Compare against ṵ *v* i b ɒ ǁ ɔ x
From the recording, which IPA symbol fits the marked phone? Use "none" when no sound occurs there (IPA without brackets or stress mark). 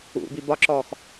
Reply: b